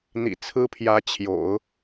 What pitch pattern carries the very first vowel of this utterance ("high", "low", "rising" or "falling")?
low